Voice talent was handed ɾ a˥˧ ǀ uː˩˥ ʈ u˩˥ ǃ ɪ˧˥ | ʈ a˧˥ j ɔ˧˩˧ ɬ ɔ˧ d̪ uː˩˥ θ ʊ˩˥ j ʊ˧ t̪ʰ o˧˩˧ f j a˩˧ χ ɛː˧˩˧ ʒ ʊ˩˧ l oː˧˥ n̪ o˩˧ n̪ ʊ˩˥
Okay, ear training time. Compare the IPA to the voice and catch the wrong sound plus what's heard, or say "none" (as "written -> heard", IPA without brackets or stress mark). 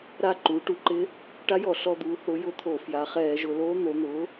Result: ǀ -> ǃ